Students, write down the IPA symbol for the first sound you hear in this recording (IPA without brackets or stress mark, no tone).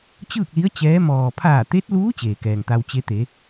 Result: t͡ɕ